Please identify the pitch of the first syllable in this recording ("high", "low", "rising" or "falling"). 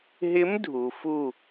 rising